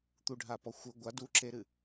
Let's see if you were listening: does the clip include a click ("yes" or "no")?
yes